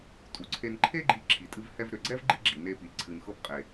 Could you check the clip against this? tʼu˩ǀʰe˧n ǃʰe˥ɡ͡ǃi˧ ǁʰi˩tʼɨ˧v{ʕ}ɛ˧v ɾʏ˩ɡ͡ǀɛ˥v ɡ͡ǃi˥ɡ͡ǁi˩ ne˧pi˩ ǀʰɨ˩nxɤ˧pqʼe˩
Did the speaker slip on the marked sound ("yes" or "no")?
yes